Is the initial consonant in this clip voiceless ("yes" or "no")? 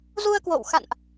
no